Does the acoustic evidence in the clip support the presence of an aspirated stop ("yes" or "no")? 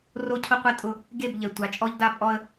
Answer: yes